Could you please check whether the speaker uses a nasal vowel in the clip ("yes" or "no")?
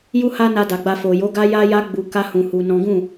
yes